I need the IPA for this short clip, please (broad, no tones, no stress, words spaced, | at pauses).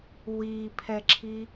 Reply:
wipʰɛǁʰi